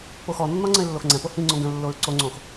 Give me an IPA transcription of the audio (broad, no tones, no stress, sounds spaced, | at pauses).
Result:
p o x ɔ nː ɔ ŋ͡ǀ ə̃ ɪ̯ lː o x ŋ͡ǀ ɛ̃ p o h ĩ ŋ͡ǀ õ ɡ ə̃ lː o ɹ ǀ o ŋ͡ǀ õ x